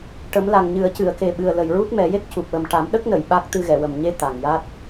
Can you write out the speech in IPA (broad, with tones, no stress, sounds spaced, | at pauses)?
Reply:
ʈ ə˨˩˦ m l a˨˩ ŋ ɲ ɨ˨˩˦ ə̯ c ɨ˨˩˨ ə̯ k e˨˩ ɓ ɨ˨˩ ə̯ l ə˨˩ j ɹ u˦˥ t̚ m ɛ˨˩˦ j e˦˥ k̚ c u˨˩ p̚ w ə˨˩ m ʈ a˨˩˦ m ɗ ə˦˥ k̚ n ə˨˩˨ j ɓ a˦˥ k̚ t̪ ɨ˧ ɣ ɛ˨˩˨ w ə˨˩ m ɲ e˧˥ t̪ a˨˩ ŋ j a˦˥ t̚